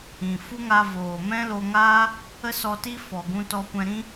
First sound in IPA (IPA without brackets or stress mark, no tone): ĩ